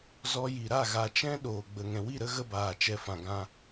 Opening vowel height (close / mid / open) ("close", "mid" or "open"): mid